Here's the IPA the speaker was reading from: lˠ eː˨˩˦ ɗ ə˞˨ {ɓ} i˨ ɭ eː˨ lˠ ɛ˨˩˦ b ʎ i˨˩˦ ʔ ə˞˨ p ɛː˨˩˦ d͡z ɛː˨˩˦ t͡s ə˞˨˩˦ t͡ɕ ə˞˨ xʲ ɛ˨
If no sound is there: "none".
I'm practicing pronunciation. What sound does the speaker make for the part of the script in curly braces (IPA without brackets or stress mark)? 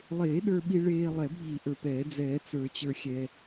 ɓ